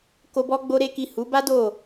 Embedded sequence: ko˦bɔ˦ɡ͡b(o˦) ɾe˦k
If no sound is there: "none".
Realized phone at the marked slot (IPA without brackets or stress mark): o˦